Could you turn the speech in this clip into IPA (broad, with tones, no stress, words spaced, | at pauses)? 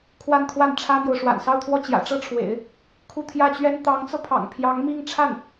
kʰwa˥˧nkʰwa˥˩n ʈ͡ʂʰä˥mjo˨ʊ̯ ʂwa̰˨˩nsɑ˥˧ʊ̯t̪ʰwɔ˥˩ t͡ɕjä̰˨˩ʈ͡ʂɤ˥ʈ͡ʂʰwḛ˨˩˦ɪ̯ | kʰu˥˧t̪ʰjä˥˩t͡ɕɥɛ˥n t̪ɑ˧˥ŋt͡sɤ˧pʰɑ̰˨˩ŋ pʰjɑ˧˥ŋmi˥˧ŋʈ͡ʂʰa˥˩n